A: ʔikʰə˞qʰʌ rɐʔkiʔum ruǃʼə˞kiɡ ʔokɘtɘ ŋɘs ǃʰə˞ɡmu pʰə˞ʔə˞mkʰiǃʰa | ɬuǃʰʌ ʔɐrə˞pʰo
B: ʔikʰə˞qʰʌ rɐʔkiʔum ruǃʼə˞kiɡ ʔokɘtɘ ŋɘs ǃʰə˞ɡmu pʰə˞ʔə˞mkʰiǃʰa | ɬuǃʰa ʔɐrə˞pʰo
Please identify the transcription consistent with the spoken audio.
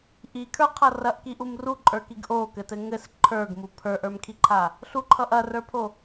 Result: A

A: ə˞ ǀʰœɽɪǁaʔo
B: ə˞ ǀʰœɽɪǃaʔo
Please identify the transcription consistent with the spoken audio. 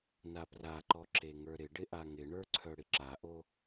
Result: A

